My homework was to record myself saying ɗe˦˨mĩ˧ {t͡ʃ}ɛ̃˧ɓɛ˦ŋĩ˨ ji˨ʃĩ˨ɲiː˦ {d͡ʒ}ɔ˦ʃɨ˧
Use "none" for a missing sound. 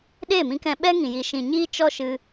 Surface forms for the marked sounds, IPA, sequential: k, t͡ʃ

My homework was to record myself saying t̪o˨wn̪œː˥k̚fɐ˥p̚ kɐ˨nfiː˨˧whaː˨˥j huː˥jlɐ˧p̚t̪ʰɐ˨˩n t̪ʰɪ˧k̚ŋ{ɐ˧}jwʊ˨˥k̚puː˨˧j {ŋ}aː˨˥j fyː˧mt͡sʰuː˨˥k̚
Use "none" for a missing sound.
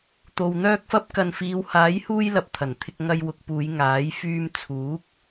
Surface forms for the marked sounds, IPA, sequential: ɐ˧, ŋ

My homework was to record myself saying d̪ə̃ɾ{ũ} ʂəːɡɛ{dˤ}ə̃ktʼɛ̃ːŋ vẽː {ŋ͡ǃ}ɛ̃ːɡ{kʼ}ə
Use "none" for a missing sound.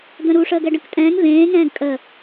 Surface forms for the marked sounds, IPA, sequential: u, ɖ, ŋ, kʼ

